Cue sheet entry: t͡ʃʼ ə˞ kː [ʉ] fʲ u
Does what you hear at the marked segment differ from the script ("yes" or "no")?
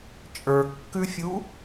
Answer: no